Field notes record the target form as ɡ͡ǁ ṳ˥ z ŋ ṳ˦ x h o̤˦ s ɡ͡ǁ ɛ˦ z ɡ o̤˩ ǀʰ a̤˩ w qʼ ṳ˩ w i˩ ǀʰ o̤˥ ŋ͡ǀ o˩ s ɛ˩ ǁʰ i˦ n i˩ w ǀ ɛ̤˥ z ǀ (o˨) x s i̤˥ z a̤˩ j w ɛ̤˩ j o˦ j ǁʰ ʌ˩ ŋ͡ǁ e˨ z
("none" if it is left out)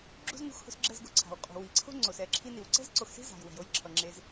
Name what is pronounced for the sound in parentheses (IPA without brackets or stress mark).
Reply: o˨